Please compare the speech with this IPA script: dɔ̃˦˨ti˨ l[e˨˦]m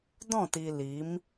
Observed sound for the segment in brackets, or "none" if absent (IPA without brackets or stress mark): i˨˦